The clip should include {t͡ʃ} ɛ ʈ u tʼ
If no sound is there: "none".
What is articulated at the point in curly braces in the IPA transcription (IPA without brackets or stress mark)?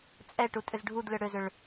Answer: t͡sʼ